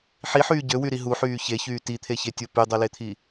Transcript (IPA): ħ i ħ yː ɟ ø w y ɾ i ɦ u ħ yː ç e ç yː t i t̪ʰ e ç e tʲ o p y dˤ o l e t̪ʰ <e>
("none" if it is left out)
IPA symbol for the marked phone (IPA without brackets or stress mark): i